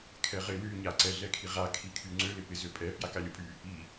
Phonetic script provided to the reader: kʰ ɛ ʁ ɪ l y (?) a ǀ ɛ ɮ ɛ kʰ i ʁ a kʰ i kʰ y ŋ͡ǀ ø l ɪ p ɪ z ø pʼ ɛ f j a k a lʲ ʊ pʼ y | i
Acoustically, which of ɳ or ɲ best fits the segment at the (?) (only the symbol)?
ɲ